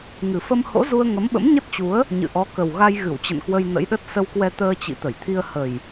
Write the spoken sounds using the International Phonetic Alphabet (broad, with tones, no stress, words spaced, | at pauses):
ŋɨ˨˩fə˧m ho̰˧˥zu˧ə̯ ŋə˨˦mɓə̰˧˥mɲə˦˥t̚t͡ɕu˨˦ə̯ | ɲɨ̰˧˨ʔɔ˨˦ kə˨˩w ɣa˧j ɣɨ˧˩w t͡ɕə̰˧˨nkwə˧j nə̰˧˥jɗə˦˥t̚ sə˧wkwɛ˧ t̪əː˧t͡ɕḭ˧˨t̪ə˧˩jt̪ʰi˧ə̯ hə˨˩j